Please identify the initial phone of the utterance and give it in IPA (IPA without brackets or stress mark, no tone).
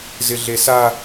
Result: z